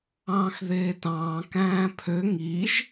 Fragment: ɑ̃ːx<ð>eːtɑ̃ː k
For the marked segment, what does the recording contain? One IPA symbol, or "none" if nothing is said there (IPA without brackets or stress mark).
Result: ð